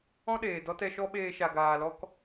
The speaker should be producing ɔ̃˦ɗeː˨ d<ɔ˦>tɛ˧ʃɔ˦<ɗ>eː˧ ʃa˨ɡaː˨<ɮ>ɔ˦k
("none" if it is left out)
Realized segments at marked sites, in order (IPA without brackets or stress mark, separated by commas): ɔ˦, ɓ, l